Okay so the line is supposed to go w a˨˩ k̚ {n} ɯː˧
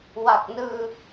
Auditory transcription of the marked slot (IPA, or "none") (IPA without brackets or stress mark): n